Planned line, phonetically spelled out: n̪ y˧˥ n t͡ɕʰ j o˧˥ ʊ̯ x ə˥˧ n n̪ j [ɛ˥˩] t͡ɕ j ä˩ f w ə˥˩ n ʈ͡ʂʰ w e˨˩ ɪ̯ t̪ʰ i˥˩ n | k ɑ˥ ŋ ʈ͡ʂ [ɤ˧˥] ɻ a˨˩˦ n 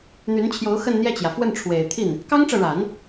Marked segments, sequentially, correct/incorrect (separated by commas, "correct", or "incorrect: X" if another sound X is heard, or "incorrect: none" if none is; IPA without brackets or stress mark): correct, incorrect: ɤ˨